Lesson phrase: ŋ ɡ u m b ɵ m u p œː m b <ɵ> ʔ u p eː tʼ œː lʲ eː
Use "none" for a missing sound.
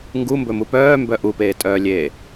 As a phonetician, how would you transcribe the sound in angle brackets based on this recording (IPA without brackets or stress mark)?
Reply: œ